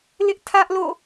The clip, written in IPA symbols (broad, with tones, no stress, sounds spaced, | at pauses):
l ɪ˦ ʔ tʰ ä˦ ʔ l o̰˦˨